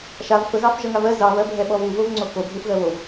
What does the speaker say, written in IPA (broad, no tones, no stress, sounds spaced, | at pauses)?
ʃ a v f ə ɣ ɑ f ʒ ʌ ŋ a v ɜ z ɑ v ɜ bʱ ɛ ɓ ɔ β u v o v ŋ͡ǀ o k o ɡʱ u f ɣ ɜ β o v